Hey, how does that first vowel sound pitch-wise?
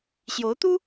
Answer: rising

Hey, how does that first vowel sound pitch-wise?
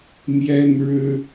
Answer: high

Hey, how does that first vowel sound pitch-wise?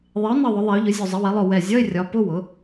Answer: rising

